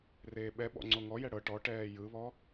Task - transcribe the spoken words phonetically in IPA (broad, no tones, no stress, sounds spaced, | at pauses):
r eː ɓ ɛ ɓ ɔ̰ ŋ͡ǀ o ŋ ɔ j ɛ ɽ ɤ ʈ ɔ ʈ ɛː j ɯ β ɔ